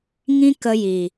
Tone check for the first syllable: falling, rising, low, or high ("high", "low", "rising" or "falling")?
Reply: high